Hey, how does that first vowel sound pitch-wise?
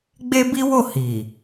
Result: high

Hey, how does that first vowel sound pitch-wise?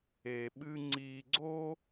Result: low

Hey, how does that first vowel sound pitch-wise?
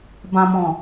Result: low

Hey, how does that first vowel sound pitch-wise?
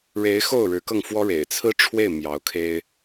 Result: rising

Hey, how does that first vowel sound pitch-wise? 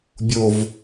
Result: low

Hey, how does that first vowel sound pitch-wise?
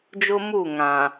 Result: high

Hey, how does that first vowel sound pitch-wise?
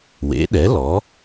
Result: rising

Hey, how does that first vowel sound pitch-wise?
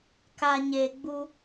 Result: low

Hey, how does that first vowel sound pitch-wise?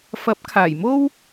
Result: rising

